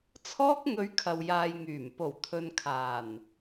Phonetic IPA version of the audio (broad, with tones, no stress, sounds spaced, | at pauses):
t͡sʰ ɔː˥ k̚ ŋ ɵ˧ ɥ kʰ ɐ˨ w j aː˨ j ŋ yː˨˩ m p o˨˩ w t̪ʰ ɵ˨ n kʰ aː˨˩ n